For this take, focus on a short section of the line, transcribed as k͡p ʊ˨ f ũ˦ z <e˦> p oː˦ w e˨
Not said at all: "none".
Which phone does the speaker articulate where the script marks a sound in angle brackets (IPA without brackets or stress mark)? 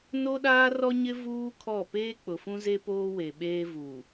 e˦